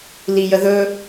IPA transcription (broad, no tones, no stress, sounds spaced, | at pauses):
l i j ə ð ɵ